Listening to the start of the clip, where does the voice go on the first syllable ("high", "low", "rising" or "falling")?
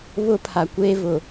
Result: high